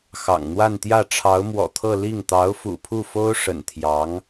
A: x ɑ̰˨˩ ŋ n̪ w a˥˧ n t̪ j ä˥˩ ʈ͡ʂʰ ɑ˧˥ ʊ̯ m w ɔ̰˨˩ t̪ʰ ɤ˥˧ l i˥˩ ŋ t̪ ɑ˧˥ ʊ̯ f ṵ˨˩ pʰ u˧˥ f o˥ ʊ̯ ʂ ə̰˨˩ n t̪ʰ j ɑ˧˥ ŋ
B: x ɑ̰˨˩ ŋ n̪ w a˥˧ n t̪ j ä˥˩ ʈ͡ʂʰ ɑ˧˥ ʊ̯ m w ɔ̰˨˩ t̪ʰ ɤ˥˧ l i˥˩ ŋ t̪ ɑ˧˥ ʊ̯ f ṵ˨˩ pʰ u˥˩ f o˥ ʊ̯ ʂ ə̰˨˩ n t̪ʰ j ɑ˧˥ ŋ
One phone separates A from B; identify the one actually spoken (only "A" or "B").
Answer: B